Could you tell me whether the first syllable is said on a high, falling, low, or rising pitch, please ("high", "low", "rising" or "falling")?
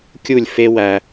falling